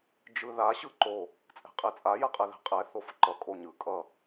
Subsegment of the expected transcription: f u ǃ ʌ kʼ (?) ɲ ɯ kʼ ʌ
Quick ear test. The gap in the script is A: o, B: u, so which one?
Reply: A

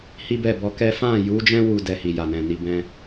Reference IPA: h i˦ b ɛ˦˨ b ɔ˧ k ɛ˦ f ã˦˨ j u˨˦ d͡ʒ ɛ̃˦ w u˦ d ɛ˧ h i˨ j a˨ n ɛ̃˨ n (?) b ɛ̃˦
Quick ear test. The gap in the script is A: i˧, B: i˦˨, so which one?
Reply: A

